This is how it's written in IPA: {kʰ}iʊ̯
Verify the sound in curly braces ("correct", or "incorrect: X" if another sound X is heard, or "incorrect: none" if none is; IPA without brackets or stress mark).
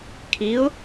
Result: correct